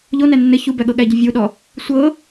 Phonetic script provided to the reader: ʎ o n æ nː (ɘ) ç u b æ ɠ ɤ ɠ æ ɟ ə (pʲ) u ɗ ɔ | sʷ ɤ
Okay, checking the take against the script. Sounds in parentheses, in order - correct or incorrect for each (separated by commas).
correct, incorrect